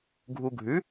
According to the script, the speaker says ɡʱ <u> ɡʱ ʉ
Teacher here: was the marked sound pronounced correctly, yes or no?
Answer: yes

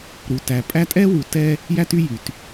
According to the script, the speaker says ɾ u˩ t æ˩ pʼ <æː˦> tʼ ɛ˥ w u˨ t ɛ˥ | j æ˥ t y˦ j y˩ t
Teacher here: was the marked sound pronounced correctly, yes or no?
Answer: no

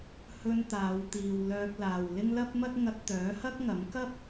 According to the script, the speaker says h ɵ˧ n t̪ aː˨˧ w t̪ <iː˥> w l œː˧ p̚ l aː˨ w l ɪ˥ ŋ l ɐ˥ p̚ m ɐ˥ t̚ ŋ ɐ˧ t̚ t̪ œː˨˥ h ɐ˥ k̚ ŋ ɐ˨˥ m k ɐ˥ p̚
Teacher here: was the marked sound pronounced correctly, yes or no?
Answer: no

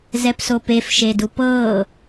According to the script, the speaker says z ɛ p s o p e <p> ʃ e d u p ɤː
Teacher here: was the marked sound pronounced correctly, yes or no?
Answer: no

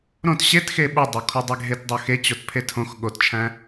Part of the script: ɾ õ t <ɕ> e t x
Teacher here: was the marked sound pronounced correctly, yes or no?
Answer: yes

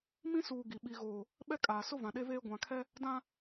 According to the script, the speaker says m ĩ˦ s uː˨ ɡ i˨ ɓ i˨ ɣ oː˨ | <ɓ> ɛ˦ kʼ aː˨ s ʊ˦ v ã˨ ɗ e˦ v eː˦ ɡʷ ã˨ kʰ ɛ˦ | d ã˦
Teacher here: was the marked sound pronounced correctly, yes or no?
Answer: yes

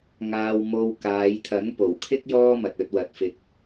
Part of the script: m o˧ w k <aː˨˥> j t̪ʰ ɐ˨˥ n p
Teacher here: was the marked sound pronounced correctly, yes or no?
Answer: no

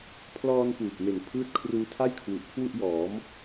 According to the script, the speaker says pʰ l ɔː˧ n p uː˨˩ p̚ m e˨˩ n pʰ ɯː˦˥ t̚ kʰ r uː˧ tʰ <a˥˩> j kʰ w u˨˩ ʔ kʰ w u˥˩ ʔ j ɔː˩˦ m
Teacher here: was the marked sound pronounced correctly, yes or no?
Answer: yes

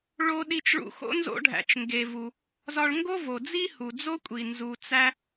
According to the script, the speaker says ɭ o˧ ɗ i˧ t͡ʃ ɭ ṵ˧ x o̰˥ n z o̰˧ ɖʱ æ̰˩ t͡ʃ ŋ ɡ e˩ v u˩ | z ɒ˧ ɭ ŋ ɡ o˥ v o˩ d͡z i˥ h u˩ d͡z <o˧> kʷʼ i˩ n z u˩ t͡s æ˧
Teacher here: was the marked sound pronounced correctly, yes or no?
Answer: no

